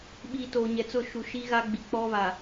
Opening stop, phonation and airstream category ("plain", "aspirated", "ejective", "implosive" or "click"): implosive